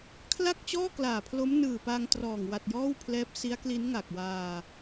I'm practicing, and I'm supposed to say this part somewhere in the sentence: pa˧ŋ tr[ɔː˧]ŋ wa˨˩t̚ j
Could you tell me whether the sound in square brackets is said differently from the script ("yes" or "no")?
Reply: yes